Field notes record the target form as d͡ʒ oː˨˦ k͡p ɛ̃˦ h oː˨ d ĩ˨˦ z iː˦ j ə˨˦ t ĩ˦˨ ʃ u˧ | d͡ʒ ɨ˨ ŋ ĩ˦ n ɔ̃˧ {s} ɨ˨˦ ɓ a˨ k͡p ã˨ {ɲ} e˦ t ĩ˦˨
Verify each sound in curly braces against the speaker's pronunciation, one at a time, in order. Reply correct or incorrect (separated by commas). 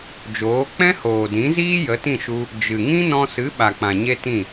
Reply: correct, correct